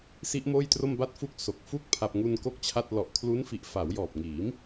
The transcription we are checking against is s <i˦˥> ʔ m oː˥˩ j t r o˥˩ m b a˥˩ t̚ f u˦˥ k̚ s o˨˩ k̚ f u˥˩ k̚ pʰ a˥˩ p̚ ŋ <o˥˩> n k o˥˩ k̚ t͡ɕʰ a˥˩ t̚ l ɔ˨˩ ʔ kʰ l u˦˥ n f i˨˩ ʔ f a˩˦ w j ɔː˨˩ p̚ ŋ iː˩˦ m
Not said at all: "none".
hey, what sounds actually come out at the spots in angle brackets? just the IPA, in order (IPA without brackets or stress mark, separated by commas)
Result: i˦˥, u˥˩